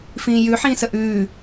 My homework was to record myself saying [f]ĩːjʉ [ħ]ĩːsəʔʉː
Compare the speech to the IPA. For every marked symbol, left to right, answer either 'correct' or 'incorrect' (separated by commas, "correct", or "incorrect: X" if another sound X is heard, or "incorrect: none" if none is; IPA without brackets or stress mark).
correct, correct